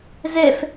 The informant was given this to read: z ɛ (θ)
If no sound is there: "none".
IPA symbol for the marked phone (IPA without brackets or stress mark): f